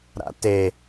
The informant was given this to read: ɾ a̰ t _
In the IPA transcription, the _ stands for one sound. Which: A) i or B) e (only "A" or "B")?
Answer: B